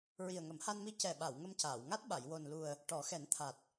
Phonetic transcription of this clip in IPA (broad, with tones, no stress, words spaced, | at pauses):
ɹi˨˩ə̯ŋə˨˩˦mha˧nmi˧˥ cɛ˨˩ɓa˨˩˨w ŋə˧mcaː˨˩˨w ŋa˦˥t̚ɓa˨˩˨j wo˨˩nlu˨˩ə̯ | ʈɔ˨˩˦xɛ˨˩˦n t̪ʰa˨˩t̚